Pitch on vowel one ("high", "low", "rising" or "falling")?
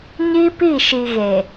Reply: high